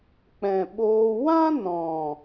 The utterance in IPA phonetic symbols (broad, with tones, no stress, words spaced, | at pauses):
k͡pɛ̃˨ɓoː˧ wã˦nɔ̃˨